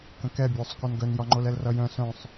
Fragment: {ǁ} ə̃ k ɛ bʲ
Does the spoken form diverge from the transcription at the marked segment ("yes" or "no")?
yes